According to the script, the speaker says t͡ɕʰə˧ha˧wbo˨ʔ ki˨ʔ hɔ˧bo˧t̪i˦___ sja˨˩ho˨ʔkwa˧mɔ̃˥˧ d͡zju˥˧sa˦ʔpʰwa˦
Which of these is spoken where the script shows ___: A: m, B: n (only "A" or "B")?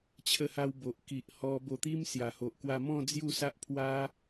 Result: A